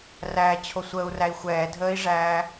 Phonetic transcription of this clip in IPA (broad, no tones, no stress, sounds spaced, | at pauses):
r æː t͡ɕʰ o sʷ əː u̯ r æ i̯ xʷ ɛː dʱ əː i̯ ʐ æː